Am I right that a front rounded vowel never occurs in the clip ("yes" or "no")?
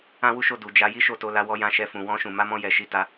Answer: yes